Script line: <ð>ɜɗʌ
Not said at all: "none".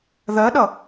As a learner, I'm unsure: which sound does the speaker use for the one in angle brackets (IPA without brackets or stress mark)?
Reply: ð